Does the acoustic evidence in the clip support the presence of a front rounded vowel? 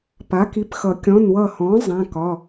no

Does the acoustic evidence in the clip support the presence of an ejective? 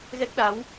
no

